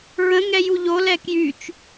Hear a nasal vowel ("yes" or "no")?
yes